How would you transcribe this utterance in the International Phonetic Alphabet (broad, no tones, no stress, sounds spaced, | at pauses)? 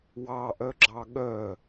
w ɑ ʔ œ ɡ͡ǁ ɑ ɠ œ